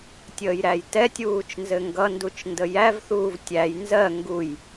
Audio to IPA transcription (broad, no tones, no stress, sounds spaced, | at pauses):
tʲ əː j ɾ æ j t ɛ tʲ uː t͡ʃ n z ɘ ŋ ɡ ʌ n d u t͡ʃ n d ə j æ v θ uː v tʲ æ j n z ɜ ŋ ɡ u j